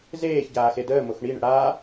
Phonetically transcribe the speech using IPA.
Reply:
zeːçɟaː xedəːmox ɳiɳə̰ ɽa

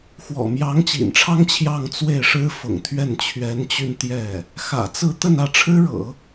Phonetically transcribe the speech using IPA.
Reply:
xwɔ̰˨˩mjɑ˧˥ŋt͡ɕḭ˨˩nʈ͡ʂʰɑ˥ŋ t͡ɕʰjɑ˥˧ŋ t͡swe˥˩ɪ̯ʂɻ̩˥ fʊ̰˨˩ŋt̪ʰɥɛ˥˩n t͡ɕʰɥɛ˧˥nt͡ɕy˧n t̪jɛ˥˩ | xä̰˨˩t͡sɹ̩˥˧ t̪ə˥˧nä˥˩ʈ͡ʂʰɻ̩˥ɻɤ̰˨˩˦

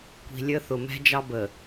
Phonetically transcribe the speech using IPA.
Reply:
kʷi̤˨lʲə˦ θʊ˨mɛ̤˦ d͡ʒɑ˦ bə˨

